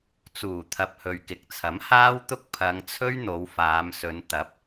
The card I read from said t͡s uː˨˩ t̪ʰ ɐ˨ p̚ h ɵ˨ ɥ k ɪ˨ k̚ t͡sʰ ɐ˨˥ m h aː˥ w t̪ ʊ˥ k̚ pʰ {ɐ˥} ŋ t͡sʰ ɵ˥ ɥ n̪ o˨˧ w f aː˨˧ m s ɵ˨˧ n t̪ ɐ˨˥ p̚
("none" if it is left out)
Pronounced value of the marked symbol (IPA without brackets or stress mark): ɐ˨˧